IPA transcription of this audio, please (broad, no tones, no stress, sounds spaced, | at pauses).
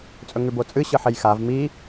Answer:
t͡sʼ ɵ ŋ ʉ b o t͡sʼ ɨ ɕ ɨ ħ e j x a v m i